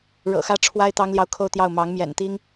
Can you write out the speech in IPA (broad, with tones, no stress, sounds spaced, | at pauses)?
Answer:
ɻ ɤ̰˨˩ x ä˥˩ ʈ͡ʂʰ w a˥ ɪ̯ t̪ ɑ˥ ŋ l j ɑ˥˧ ʊ̯ kʰ o˥˧ ʊ̯ t̪ j ɑ˥˩ ʊ̯ m ɑ˧˥ ŋ m j ɛ̰˨˩ n t̪ i˥ ŋ